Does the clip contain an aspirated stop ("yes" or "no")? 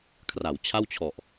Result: yes